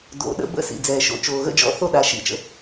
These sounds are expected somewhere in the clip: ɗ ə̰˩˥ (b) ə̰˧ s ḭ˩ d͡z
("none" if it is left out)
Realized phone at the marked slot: b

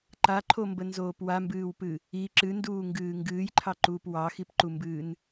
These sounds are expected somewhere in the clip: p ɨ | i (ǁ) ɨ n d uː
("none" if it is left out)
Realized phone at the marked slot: ǁ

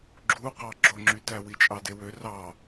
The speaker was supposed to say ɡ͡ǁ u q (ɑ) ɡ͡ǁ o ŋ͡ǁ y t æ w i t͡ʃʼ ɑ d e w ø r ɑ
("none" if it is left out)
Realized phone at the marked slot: ɑ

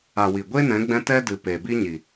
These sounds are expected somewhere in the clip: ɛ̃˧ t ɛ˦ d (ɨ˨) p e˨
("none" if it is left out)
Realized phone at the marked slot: ɨ˨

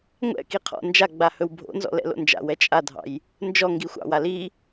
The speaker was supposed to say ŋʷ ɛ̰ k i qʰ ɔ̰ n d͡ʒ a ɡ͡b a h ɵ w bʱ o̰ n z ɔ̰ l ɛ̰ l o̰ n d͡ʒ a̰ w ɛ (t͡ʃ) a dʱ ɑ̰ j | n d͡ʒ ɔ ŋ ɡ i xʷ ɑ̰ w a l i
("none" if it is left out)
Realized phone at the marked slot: t͡ʃʼ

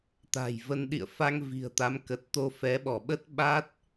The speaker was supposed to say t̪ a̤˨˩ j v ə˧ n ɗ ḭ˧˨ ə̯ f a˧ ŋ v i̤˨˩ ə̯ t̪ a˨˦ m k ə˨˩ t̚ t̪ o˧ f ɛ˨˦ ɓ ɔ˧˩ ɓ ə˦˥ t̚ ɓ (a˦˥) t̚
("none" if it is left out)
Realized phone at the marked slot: a˦˥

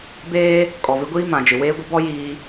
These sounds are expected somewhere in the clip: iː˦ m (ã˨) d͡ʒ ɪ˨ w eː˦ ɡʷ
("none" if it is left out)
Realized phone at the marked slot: ã˨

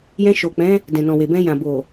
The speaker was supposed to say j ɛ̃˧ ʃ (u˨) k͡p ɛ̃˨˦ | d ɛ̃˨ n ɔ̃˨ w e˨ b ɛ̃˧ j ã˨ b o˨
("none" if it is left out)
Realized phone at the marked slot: o˨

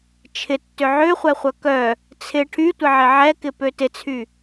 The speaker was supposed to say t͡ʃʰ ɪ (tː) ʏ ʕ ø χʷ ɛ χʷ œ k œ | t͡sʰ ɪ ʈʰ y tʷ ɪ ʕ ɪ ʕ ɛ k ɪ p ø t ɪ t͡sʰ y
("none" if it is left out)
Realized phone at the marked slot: tː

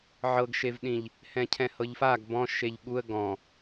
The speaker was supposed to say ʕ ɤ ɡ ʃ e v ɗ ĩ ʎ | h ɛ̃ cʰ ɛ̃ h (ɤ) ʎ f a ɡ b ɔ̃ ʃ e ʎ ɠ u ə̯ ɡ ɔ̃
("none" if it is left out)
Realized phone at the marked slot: ɤ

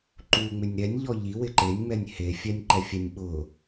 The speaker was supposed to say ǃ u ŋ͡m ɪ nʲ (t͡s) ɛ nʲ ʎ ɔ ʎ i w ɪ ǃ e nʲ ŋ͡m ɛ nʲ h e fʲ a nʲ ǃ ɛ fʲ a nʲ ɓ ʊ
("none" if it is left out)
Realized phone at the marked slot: ɾ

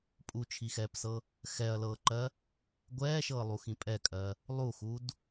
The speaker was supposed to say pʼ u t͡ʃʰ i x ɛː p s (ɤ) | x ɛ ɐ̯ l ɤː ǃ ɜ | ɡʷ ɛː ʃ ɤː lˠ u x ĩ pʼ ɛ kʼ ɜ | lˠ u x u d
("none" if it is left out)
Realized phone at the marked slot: ɤ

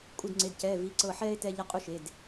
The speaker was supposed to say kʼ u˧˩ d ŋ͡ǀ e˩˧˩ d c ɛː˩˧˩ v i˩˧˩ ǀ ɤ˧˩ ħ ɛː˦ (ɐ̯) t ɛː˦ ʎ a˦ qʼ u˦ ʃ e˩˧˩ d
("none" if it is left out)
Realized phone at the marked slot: e̯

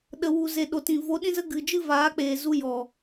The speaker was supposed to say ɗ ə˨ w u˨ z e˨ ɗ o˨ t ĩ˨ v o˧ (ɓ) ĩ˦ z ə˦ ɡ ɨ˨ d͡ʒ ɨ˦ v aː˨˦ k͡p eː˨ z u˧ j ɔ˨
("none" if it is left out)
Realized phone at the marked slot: ɗ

